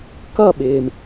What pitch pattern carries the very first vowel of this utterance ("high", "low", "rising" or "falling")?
falling